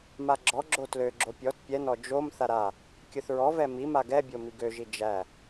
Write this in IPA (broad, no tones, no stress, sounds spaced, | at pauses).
m a ɡ͡ǁ ɔ ɡ͡ǁ o t l ø ɡ͡ǁ o pʲ ɔ t pʲ ɛ n ɔ d͡ʒ o m θ a ɾ a | kʲ ɯ θ ɹ ɔ v ɛ m i m a ɡ ɛ bʲ o m i ɡ ø ʒ i d͡ʒ æ